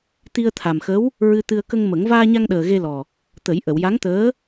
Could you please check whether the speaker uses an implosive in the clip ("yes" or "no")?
yes